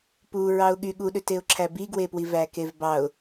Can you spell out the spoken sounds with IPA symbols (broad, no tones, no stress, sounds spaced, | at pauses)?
p u ɹ ɑ ʊ̯ ɠ y ɠ u ɗ ø t e ʊ̯ ǁʰ æ b i ɡ w e p w i v æ k e v b ɑ ʊ̯